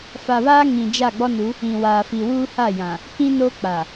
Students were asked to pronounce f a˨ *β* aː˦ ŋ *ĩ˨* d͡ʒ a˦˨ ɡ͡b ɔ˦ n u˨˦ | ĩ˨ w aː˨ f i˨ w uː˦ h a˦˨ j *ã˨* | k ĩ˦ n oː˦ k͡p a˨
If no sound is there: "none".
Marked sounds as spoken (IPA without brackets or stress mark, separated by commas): β, ĩ˨, ã˨